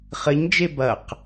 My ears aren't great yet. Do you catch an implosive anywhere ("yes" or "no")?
no